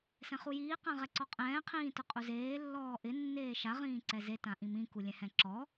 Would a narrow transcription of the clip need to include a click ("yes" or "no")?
yes